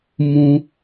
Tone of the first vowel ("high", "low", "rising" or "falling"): high